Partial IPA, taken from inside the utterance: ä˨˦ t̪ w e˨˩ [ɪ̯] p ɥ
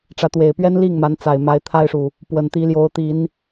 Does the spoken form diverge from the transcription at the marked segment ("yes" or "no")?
no